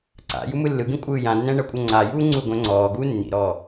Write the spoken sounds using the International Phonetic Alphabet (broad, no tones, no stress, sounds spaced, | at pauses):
ǀ a̰ j u m ɯ lː ɯ ɡ ĩ kʷʼ ɯː j ã nː ɛ̃ ɳ ɤ kʷʼ ɤ ŋ͡ǀ a j uː ŋ͡ǀ u ɡʷ ɛ̃ ŋ͡ǀ ɔː ɡ uː nː ḭ ɾ ɔː